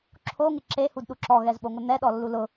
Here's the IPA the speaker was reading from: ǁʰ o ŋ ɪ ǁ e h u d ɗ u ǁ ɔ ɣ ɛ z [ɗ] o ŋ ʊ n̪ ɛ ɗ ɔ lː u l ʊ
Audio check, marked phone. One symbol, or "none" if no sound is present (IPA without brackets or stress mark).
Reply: ɓ